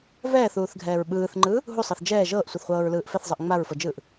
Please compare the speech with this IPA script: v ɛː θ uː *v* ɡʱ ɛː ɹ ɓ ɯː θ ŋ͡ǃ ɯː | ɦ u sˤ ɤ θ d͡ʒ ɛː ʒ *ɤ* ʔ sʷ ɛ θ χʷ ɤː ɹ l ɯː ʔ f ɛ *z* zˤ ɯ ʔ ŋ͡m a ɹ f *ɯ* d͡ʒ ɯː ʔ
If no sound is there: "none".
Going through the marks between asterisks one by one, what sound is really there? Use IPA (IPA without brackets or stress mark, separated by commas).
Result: θ, ɤː, θ, ɤ